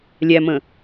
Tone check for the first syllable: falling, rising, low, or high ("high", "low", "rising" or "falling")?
low